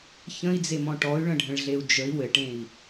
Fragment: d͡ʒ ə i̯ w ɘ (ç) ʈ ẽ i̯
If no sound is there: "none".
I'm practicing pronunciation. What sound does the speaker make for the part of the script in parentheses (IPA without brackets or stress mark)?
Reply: none